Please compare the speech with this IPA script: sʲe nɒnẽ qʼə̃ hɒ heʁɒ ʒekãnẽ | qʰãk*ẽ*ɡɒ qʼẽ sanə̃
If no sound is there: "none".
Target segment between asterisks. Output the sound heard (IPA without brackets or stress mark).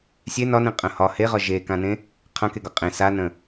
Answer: e